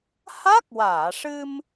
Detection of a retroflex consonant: present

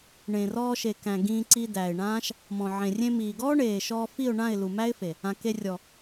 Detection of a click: present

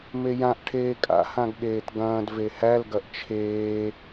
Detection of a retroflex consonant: present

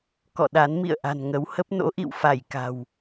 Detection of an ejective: absent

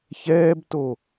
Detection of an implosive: absent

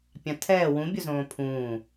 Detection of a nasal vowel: present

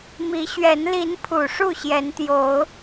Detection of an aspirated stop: present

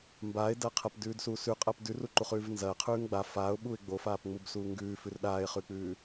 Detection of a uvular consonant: present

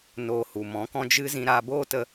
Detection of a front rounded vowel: absent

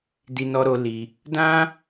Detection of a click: absent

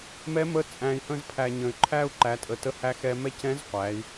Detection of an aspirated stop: present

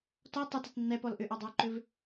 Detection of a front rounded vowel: present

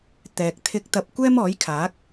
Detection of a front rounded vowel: absent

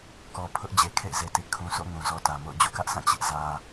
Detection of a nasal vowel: present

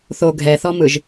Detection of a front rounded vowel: absent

